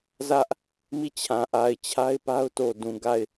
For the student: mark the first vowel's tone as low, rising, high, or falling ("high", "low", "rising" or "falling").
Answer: high